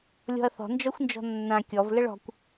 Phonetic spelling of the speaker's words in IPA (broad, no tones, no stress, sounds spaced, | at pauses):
lʲ ɔ̤ ɐ̯ θ ɔ̤ n d͡ʒ ɔ xʷ n d͡ʒ ɔ̤ nː ã kʲ ɔ v l ə ɭ ɔ̤ kʷ